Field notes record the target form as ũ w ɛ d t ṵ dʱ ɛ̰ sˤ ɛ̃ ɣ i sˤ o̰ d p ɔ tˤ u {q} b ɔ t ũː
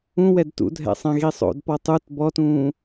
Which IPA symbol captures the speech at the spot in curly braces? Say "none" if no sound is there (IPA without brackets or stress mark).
t